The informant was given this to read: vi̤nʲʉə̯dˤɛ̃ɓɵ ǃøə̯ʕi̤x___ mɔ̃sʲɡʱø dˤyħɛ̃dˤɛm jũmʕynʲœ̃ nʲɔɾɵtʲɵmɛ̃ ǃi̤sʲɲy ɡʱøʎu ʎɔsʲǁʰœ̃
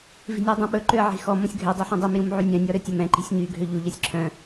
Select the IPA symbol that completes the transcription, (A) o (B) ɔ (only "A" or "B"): B